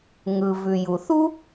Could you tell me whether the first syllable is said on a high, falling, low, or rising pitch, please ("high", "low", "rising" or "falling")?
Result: low